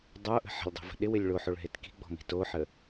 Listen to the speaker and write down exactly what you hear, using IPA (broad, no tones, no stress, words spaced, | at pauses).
dˤoʔə̤ ħə̤lʲdˤi̤və̤ ɗɪwɪlʲ ɭoħoɭɦet ki̤ɡ͡bɔ̤mi̤ toħə